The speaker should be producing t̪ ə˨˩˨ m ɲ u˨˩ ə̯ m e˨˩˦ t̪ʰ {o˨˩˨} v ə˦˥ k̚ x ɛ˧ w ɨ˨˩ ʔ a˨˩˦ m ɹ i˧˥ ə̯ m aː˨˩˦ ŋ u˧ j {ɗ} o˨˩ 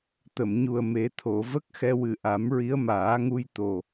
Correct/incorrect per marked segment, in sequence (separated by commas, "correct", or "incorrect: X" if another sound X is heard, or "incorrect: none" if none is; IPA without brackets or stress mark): correct, incorrect: t̪